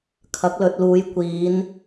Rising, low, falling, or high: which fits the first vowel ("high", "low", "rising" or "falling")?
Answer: rising